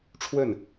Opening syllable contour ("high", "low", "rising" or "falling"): falling